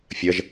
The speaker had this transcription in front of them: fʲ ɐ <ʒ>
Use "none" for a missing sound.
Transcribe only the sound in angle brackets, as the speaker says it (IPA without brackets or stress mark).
ʒ